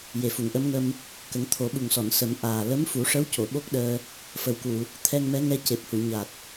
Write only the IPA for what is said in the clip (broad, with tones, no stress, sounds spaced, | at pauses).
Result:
j e˨˩ f u˨˩˨ ŋ ʔ ə˧˥ m ŋ ə˧ m | k ə˨˩˦ ŋ t̪ʰ o˨˩˦ ɓ u˨˩ ŋ s ɔ˨˩˨ n s ə˨˩˦ m ʔ aː˨˩ l ə˧˥ m f u˨˩˦ ʂ ə˧˥ w c o˨˩˨ ɓ o˦˥ k̚ ɗ əː˧ | f ə˨˩ w k u˨˩˨ | t̪ʰ ɛ˧ ŋ m ɛ˧˥ ŋ ɛ˧ c e˨˩ p̚ h u˨˩˨ ɲ a˨˩ t̚